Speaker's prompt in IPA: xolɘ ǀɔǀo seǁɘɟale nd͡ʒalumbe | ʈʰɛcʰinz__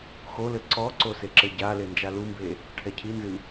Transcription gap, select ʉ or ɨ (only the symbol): ɨ